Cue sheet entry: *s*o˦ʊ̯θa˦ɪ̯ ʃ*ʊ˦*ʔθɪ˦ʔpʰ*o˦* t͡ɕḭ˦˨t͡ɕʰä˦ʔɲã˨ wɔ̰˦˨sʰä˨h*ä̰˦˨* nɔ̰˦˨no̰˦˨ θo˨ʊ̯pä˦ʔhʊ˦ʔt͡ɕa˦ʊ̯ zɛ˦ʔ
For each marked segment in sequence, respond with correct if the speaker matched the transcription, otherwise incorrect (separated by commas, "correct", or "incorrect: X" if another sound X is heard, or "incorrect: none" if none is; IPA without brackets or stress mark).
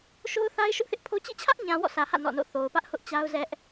incorrect: ʃ, correct, correct, correct